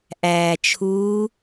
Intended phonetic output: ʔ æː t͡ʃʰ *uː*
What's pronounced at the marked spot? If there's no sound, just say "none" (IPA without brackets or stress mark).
uː